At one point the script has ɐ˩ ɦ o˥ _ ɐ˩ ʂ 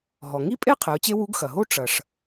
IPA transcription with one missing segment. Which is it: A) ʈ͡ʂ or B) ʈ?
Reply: A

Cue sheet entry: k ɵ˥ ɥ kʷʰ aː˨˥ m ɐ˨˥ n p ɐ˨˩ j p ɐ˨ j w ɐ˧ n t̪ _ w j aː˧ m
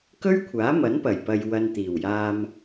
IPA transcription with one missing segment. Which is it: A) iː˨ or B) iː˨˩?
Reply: B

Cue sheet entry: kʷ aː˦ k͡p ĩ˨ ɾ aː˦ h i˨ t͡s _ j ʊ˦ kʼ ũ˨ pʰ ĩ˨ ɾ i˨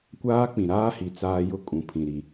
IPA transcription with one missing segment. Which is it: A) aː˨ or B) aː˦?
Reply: B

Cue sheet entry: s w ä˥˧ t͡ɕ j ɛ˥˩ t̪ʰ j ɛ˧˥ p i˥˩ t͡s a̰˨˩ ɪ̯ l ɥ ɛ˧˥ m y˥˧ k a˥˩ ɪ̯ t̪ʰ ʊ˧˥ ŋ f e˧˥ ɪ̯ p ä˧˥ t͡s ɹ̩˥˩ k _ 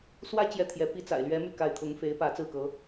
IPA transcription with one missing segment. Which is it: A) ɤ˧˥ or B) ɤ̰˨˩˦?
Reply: A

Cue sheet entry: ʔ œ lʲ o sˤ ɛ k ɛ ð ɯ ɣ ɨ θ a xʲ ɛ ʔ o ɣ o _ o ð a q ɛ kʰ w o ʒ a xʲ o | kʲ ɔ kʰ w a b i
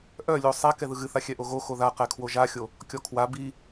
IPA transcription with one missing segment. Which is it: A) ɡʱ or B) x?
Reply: B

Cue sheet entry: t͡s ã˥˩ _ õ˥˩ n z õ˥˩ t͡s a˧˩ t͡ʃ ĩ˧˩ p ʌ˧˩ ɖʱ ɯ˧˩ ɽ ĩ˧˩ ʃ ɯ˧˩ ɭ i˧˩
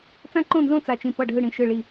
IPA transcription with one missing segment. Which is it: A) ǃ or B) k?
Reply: A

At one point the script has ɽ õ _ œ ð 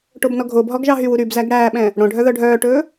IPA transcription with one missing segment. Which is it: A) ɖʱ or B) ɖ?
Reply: A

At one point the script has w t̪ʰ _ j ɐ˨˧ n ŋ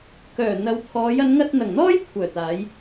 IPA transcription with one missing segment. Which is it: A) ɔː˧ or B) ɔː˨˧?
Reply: B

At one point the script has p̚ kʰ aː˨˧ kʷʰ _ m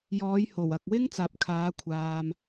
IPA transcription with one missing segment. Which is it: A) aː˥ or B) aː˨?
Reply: B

